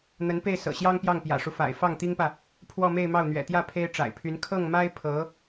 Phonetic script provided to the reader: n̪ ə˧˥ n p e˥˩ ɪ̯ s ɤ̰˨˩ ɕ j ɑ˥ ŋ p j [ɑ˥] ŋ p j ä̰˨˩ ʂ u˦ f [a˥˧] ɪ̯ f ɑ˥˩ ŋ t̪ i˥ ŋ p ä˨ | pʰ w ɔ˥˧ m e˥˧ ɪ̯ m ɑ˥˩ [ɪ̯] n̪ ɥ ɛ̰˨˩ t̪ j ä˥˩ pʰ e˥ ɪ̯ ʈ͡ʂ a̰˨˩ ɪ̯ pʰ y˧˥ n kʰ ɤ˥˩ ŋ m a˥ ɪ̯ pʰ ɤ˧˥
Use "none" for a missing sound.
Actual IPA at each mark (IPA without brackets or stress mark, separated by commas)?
ɑ˥˩, a̰˨˩, ʊ̯